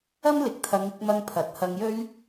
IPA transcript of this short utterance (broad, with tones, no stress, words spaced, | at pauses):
ɐ˥mlɪ˨k̚t̪ʰɐ˨˧ŋɪ˧k̚ mɐ˧ŋpʰɐ˨t̚ hɐ˧ŋjɵ˥ɥ